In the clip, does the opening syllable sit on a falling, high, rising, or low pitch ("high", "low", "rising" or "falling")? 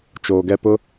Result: low